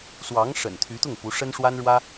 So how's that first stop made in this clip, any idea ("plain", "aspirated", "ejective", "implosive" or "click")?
aspirated